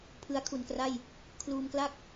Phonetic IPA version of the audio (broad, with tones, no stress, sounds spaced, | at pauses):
pʰ ɯ˦˥ a̯ kʰ u˨˩ n k r a˥˩ j | kʰ l uː˧ m k l a˥˩ k̚